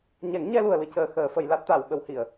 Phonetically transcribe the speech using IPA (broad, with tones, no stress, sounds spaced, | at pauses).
ɲ ɛ˨˩˦ ŋ ɲ ɛ˧ l u˨˩ ə̯ l ɨ˧ c əː˧ x əː˨˩˦ f ə˨˩˦ j l a˦˥ t̚ t̪ a˨˩˨ w ɓ ə˨˩˦ w h i˨˩˨ ə̯